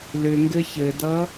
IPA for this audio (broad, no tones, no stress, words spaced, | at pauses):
lʏŋɡɘ çɘdʌ